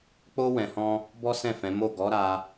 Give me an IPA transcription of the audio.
k͡p o˦ w ɛ̃˧ h ɔ̃˦ | b ɔ˦ s ɛ̃˦˨ f ɛ̃˨˦ m o˦˨ ɡ ɔ˨˦ ɾ a˦

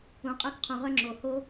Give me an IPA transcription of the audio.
ũ˩ qʼ œ˧ k qʰ ũ˩ ʁ œ˧ ŋ͡ǁ o˩ h o˧

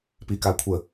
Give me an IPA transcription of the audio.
p i k a kʷʰ ə

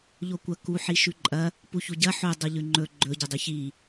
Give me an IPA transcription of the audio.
ʎ o kʷ ɐ k u ħ i ʃ ʉ ǃʼ ɐ | p u ç u ɟ ɐ ħ o dˤ o ʎ ʉ ŋ͡ǃ ɵ ɡ͡ǃ ɵ ɟ ɐ dˤ ʉ ç i

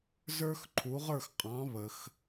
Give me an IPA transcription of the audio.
z ə˞˥ x ǃʰ u˩˥ ʁ ə˞˥˩ x qʼ ɑ̃˩˥ β ə˩ x

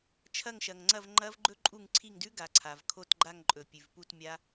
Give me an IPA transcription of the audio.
t͡ʃʰ ɐ˦˨ ŋ ʃ ɐ˩ ŋ ŋ͡ǀ ɐ˦˨ v ŋ͡ǃ ɐ˦˥ v ɡ͡ǃ ɵ˦˥ ǃʼ u˦˨ ŋ ǀʰ i˦˨ ŋ d ʉ˦˥ ɡ a˩ ǀʰ a˩ v kʰ o˦˨ t ɡ͡ǃ a˦˨ ŋ ǃʼ ɵ˩ pʲ ʉ˩ v p u˦˨ t mʲ a˦˥

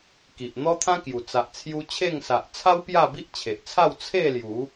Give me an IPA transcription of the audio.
k i˨ ʔ n̪ ɔ˦ t̪ʰ ã˦ k j u˨˩ t͡s a˨ ʔ t͡sʰ j u˧ t͡ɕʰ e˥˧ ŋ s a˨ ʔ t͡sʰ a˦ w p j a˥˧ b i˦ ʔ t͡ɕʰ e˨ ʔ t͡sʰ a˥˧ w t͡sʰ e˥˧ l j u˨˦

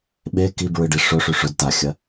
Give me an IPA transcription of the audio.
ɓ e k i b ɹ ɨ ɖ i ʂ ɵ ʂ ʉ ʂ ɵ d t a xʲ ɐ

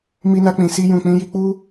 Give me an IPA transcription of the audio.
m i˧ n a˧ k͡p ĩ˨ s i˧ j ũ˨ k͡p ĩ˧ j i˧ k͡p u˧

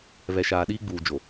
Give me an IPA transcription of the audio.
β ɛ˨ ʃ aː˨ ɗ iː˦ ɡ͡b uː˨ d͡ʒ o˨

